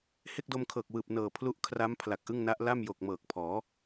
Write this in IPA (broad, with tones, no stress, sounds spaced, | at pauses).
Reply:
h e˥˩ k̚ d o˧ m kʰ ɤː˨˩ k̚ w ɯː˨˩ p̚ n ɤː˨˩ pʰ l u˦˥ ʔ kʰ r a˦˥ m pʰ l a˨˩ k̚ ʔ ɯ˥˩ ŋ n a˦˥ ʔ l a˥˩ m j o˨˩ k̚ m ɤː˨˩ k̚ pʰ ɔː˩˦